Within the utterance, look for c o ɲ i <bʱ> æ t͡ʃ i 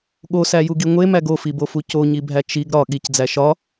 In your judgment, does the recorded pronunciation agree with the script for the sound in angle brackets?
yes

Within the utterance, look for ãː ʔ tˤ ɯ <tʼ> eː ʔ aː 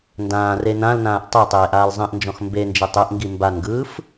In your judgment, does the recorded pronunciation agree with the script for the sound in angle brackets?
no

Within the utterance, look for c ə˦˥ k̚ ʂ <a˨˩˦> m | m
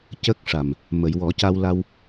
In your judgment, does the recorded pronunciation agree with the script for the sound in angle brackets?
no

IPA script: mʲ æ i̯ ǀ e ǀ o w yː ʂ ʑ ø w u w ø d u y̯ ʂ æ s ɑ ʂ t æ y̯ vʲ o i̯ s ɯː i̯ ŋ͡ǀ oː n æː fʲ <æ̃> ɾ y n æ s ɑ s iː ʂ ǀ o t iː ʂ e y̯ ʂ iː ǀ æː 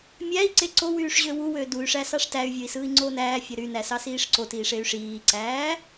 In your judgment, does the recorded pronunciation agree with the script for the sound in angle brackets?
no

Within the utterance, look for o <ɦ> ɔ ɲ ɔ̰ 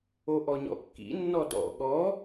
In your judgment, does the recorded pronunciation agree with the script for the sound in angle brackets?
no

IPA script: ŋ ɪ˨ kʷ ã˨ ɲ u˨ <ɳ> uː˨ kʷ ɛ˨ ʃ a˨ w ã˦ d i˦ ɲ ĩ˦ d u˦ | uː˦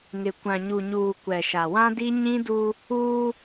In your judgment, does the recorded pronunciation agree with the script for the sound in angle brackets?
no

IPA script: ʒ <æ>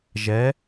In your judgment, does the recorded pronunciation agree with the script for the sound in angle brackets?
no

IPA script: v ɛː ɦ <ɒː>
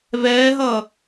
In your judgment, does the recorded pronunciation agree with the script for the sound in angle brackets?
no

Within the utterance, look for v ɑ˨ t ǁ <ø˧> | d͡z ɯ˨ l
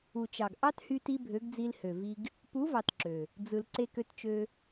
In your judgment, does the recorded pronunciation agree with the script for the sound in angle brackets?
no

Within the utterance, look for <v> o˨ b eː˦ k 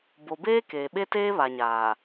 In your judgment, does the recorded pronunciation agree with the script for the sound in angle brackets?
no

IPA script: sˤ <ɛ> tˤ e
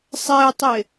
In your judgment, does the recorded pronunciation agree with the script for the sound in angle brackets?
yes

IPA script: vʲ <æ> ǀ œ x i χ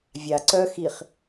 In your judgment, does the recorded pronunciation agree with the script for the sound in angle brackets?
no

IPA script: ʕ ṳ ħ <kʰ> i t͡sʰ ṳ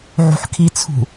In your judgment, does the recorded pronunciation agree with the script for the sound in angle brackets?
yes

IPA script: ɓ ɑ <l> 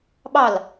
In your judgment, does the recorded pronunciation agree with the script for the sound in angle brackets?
yes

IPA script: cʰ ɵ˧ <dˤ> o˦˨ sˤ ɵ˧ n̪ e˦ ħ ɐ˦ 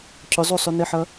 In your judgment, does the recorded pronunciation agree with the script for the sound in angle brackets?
no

